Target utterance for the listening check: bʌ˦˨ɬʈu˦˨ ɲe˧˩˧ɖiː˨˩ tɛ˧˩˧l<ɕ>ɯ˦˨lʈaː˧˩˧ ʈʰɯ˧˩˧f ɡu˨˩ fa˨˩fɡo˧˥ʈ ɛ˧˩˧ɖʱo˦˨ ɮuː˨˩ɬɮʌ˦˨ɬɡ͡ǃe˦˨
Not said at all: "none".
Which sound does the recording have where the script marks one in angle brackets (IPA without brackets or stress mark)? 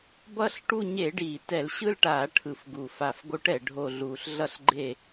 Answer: ɕ